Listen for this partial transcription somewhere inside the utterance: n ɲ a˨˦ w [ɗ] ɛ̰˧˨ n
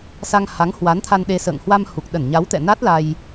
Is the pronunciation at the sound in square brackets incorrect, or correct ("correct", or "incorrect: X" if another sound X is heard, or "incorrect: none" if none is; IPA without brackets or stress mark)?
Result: incorrect: t̪